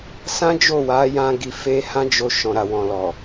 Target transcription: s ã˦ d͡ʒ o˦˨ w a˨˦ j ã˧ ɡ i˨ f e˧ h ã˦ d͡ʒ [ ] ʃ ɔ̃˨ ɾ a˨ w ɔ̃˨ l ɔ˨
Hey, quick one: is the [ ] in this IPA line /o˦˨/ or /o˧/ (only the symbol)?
o˧